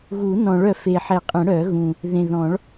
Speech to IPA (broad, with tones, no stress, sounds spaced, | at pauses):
ɣ u˨˩˦ n ɔ̃˨˩˦ ɭ œ˨˩˦ f e˨˩ ħ ɛ˨˩˦ qʼ ɛ̃˨˩˦ ɽ œ˨˩˦ ɣ ũ˨˩ | ð ẽ˨˩ ð ɔ̃˨˩˦ ɭ